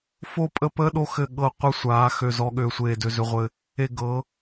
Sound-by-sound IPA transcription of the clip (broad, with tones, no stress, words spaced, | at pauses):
fo˦˨pʼə˦˨pəː˦ ɗo˦xɘ˦˨ɠɤ˦˨ qʷɘ˦ sʷaː˨˦xø˦˨zɔ˦ ɠøː˦sʷeː˦˨ dø˦zø˦ʁʷɘ˦ | e˦˨ɡɤ˨˦